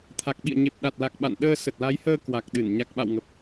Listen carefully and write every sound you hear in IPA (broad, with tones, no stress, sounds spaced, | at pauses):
t̪ʰ a˨˩ k̚ ɓ ḭ˧˨ ə̯ ɲ e˨˩ p̚ ɗ a˨˩ t̚ l a˨˩ k̚ ɓ a̰˧˨ n ɗ əː˧ s ə˨˩ t̚ l a˨˦ j h əː˧ k w a˨˩ k̚ ɗ ɨ˧˩ n ɲ a˨˩ k̚ ɓ a̰˧˨ w ŋ ə˨˩ p̚